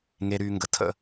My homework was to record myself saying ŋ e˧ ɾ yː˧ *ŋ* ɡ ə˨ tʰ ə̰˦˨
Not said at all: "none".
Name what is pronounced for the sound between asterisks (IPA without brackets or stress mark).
ŋ